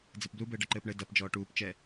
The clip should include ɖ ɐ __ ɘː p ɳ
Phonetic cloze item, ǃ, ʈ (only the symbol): ǃ